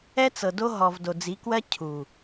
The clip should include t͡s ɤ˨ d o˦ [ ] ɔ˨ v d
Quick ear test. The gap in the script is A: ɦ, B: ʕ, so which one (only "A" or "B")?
A